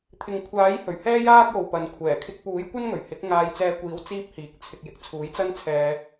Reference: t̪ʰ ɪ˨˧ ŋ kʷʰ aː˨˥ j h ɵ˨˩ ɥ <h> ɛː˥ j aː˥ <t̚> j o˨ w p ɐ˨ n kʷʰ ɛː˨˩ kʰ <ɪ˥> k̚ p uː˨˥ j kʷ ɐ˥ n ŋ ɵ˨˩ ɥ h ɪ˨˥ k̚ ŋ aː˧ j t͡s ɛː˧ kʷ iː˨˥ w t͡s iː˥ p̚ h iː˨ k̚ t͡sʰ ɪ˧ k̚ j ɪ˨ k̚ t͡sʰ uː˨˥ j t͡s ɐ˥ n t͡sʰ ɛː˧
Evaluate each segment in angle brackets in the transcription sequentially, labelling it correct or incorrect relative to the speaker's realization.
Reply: correct, incorrect: k̚, incorrect: ɪ˧

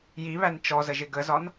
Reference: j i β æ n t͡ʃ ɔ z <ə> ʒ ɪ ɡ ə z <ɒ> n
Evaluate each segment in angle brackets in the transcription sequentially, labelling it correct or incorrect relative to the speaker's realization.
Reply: correct, correct

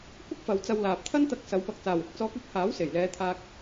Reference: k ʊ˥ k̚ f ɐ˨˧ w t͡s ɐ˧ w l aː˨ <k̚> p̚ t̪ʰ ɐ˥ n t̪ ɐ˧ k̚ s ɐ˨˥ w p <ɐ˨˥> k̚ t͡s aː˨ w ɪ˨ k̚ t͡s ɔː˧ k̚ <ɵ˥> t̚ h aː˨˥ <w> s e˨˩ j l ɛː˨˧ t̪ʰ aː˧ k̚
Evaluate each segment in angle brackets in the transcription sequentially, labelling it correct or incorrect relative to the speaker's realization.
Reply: incorrect: none, correct, correct, correct

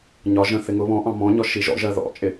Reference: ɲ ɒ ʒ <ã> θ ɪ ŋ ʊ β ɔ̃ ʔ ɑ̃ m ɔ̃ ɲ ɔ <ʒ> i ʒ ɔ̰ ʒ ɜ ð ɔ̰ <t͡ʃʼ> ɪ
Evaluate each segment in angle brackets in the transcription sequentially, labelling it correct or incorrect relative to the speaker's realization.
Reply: incorrect: ə̃, incorrect: ʃ, correct

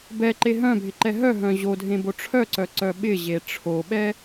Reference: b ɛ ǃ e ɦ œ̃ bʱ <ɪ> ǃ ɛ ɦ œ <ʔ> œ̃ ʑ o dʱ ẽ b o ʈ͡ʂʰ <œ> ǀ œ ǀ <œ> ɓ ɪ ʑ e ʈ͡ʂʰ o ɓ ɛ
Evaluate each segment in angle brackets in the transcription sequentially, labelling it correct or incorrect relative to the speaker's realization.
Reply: correct, incorrect: ɦ, correct, correct

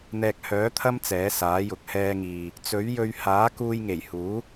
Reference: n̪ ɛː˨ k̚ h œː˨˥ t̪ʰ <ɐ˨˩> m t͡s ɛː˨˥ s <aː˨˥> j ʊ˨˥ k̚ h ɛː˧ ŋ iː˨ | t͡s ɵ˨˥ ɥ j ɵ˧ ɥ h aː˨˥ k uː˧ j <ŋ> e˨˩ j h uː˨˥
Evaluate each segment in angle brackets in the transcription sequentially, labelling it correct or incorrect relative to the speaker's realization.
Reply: incorrect: ɐ˥, correct, correct

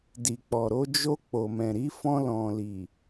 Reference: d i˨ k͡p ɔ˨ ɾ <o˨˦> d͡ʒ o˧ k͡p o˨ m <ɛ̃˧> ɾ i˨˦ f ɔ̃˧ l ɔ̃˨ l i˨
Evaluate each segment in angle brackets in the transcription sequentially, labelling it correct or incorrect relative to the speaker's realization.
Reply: correct, incorrect: ɛ̃˨

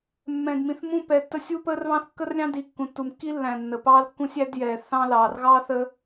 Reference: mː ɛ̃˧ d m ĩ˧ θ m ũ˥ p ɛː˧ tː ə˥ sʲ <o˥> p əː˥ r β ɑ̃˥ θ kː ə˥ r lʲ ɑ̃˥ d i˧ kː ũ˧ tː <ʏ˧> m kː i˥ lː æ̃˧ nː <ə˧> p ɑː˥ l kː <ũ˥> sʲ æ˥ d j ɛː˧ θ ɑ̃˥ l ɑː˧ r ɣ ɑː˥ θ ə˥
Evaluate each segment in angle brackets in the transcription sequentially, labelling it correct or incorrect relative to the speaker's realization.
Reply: incorrect: u˥, incorrect: u˧, correct, correct

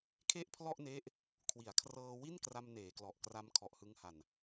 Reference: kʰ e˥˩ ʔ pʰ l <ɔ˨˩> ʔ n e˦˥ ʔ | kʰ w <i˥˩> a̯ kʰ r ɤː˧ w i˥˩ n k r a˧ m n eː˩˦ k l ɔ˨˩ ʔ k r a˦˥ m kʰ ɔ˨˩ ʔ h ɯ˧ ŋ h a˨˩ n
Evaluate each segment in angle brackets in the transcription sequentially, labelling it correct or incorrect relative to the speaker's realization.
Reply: incorrect: ɔ˥˩, incorrect: i˩˦

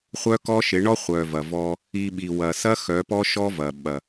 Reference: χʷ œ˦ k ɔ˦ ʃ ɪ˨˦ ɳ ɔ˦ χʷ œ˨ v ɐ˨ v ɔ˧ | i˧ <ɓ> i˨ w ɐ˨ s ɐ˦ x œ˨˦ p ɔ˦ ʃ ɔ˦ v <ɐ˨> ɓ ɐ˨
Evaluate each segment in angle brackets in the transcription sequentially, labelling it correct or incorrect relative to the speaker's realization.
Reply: correct, correct

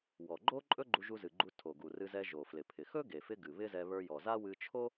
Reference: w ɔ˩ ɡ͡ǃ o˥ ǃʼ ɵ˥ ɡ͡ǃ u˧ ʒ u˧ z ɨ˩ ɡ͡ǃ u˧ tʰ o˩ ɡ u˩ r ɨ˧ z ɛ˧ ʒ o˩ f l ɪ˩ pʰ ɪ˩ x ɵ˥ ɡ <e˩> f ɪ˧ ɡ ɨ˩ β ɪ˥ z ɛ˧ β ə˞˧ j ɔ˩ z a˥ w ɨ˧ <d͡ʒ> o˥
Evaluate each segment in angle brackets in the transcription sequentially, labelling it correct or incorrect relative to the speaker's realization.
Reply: correct, incorrect: t͡ʃʰ

